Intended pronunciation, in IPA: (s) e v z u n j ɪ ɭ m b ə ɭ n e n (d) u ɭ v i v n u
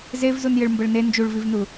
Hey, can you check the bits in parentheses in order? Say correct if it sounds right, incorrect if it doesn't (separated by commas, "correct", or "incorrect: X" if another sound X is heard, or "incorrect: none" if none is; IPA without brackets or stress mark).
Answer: incorrect: z, incorrect: d͡ʒ